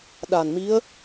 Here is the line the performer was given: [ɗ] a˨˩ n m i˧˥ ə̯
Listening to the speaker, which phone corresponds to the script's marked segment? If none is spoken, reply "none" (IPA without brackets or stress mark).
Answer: ɗ